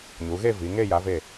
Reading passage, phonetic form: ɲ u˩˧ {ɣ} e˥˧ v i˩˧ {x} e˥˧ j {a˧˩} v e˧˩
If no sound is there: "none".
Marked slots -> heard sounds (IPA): ɣ, ŋ, a˩˧

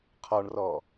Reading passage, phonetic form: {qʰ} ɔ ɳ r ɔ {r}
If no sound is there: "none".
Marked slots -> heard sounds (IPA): qʰ, none

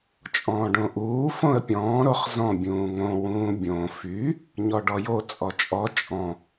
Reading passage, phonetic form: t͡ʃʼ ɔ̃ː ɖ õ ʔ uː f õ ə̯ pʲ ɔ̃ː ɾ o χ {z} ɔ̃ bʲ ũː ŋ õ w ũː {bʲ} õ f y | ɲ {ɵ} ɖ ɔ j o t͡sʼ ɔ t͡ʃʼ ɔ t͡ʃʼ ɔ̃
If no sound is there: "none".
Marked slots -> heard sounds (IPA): z, bʲ, ɔ

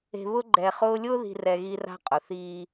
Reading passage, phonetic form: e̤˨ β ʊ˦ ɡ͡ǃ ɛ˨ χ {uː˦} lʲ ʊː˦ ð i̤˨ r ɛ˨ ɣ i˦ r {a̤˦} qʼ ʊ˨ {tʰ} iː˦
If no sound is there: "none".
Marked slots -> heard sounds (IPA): ʊː˦, a̤˦, θ

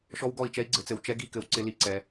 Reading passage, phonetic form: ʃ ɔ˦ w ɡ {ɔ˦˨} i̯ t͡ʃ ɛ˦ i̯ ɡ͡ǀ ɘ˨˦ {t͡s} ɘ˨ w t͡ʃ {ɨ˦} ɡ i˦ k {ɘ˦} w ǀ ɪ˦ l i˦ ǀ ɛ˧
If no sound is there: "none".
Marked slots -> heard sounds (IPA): ɔ˦˨, t͡s, ɛ˦, ɘ˨

